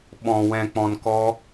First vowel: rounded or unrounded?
rounded